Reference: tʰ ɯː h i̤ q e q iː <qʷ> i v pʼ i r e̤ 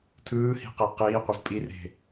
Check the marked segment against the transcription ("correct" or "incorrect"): correct